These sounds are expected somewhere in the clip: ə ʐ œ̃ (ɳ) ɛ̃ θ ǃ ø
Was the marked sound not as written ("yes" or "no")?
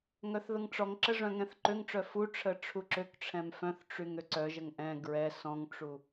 yes